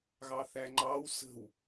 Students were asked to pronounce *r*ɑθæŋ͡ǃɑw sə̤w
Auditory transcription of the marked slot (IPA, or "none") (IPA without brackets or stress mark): ɣ